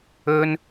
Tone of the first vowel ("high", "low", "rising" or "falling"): high